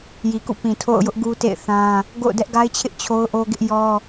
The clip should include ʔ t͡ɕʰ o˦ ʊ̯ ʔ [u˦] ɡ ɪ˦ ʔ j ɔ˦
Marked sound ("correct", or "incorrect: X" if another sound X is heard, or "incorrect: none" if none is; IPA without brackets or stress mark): incorrect: o˦